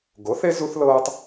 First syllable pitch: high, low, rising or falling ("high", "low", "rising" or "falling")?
rising